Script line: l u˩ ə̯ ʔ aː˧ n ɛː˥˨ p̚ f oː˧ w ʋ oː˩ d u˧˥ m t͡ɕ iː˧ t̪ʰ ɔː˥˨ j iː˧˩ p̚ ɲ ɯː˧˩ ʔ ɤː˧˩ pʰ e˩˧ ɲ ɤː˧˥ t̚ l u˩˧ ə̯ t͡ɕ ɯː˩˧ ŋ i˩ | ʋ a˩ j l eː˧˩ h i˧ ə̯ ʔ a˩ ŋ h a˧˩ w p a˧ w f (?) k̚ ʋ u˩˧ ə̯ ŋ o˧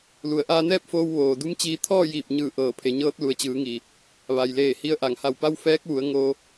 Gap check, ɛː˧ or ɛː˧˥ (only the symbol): ɛː˧˥